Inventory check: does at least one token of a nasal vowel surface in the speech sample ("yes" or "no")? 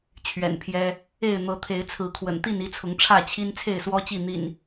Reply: no